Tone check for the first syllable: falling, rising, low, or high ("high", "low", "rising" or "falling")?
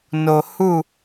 low